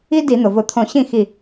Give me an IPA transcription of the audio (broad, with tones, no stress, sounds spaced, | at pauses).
i˦ d i˧˩˧ n̪ ʊ˩ v ʊ˧˩˧ t̪ʰ õ˧˩ ɕ ĩ˥˩ x i˧˩